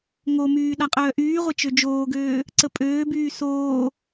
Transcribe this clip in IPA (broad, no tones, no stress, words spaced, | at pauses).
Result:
ŋomyː ɗaqʼœːʔyːʁʷe t͡ʃød͡ʒoːɡøː | ǀəpʼøːbyː soː